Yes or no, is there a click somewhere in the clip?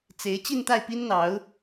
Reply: no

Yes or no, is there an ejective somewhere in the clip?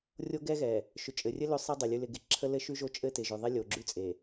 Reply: yes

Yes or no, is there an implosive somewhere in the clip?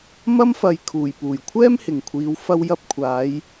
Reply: no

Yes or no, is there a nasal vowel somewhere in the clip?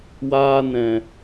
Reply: yes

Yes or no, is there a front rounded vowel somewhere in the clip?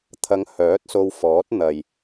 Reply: yes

